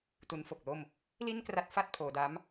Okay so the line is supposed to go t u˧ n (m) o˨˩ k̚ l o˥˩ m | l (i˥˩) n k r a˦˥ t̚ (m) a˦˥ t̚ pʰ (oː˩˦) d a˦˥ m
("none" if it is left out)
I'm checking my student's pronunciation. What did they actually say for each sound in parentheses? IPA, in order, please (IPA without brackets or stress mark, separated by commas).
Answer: f, i˥˩, f, oː˩˦